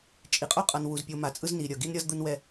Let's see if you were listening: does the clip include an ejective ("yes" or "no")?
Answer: yes